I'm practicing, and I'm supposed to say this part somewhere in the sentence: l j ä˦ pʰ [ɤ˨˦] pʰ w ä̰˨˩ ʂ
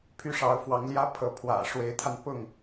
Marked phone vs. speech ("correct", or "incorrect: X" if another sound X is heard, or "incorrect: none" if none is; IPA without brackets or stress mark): correct